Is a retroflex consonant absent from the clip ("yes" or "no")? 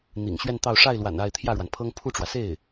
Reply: no